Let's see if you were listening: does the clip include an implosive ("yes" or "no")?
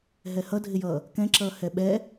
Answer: yes